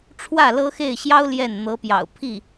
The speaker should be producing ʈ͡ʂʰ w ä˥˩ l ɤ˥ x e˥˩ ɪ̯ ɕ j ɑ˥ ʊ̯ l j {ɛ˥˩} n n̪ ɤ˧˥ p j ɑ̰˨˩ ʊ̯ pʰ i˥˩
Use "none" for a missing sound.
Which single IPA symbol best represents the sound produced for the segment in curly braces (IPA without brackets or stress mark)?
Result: ɛ˥˩